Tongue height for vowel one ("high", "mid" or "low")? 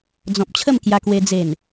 mid